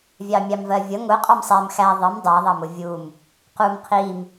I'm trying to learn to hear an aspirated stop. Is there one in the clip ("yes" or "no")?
yes